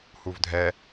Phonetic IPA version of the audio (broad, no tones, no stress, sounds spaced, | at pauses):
h u v dʱ ɛ